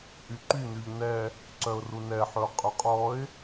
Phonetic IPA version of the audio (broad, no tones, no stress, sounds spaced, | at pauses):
ʔ y ǃ y n̪ y ʎ n ɛ | ǀ œ ʊ̯ r u n ɛ ħ ɵ ʊ̯ qʼ y qʼ ɔ ɪ̯